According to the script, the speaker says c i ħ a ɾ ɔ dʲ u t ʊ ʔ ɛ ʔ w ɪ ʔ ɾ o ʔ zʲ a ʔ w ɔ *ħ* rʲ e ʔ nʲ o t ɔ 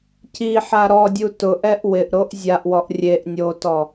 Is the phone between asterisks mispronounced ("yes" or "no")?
yes